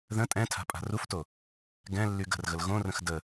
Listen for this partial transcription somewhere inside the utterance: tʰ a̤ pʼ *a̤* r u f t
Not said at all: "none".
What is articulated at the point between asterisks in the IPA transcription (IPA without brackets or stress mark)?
a̤